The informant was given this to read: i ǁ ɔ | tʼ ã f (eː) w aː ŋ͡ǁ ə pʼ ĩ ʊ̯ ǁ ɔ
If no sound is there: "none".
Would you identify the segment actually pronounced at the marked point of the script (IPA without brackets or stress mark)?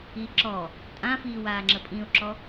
iː